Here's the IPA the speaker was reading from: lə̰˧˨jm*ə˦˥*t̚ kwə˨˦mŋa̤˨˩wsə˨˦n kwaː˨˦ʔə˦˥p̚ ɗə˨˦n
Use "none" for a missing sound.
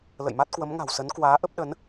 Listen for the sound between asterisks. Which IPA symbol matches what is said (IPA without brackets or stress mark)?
a˦˥